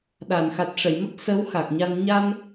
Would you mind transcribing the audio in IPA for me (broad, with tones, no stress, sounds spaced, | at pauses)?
ɗ a˨˩˨ n x a˨˩ t̚ ʂ ə˨˩˨ j m ə˦˥ k̚ s ə˧˥ w x a˨˩ k̚ ɲ a˧ n ɲ a˧ n